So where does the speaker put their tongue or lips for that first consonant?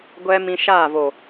velum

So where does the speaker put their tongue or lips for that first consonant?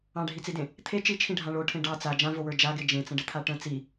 retroflex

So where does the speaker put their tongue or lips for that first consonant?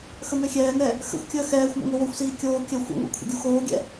velum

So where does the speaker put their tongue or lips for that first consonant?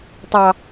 tongue tip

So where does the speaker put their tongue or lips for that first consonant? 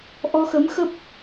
throat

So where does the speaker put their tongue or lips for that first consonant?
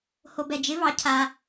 throat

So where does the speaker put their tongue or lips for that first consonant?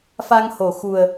lips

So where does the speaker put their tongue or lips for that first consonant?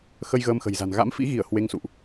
velum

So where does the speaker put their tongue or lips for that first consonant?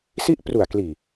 tongue tip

